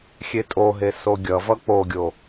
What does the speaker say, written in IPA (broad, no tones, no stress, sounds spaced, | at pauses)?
xʲ e tʼ o ɦ e s o ɡʲ ʌ v ʌ k͡p o ɡʲ o